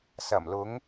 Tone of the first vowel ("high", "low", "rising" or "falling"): low